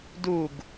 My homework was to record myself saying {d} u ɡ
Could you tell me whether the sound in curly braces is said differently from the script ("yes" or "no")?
no